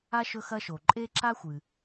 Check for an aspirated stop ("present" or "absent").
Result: absent